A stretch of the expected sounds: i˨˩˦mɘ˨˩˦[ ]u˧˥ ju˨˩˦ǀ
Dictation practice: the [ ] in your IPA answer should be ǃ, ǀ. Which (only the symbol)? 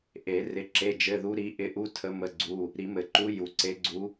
ǃ